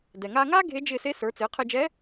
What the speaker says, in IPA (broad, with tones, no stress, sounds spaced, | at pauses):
d ɛ˩ ŋ aː˧ ŋ aː˥ ɡʱ e˧˥ d͡ʒ ɪː˧ s e˧˥ s ə˞˩˧ t͡s ɪː˩˧ qʰ ɪː˧ d͡ʒ ɛ˧˥